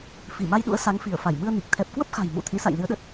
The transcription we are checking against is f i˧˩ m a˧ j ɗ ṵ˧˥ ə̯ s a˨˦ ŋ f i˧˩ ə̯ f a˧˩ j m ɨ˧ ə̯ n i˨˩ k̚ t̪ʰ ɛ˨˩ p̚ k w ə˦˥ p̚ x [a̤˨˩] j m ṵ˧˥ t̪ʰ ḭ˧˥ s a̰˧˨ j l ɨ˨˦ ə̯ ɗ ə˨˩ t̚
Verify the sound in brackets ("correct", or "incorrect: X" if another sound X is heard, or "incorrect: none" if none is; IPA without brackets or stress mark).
correct